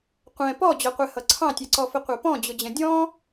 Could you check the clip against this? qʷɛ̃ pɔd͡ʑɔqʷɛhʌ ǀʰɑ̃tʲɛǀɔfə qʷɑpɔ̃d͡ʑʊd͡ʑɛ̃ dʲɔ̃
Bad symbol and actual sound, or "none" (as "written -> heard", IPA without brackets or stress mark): none